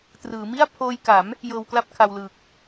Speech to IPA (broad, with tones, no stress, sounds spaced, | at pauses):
t r ɯː˩˦ m i˥˩ a̯ pʰ oː˧ j k a˩˦ m | j ɤː˧ w k l a˥˩ p̚ kʰ a˧ w l ɯː˨˩ k̚